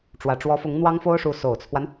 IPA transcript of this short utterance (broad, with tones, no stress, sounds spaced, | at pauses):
ʈ͡ʂ w ä˨˩ ʈ͡ʂ w ɔ˧˥ f ʊ˧˥ ŋ n̪ w ɑ˥ ŋ f o˥ ʊ̯ ʂ u˧˥ s o˨˩ ʊ̯ t͡sʰ w a˦ n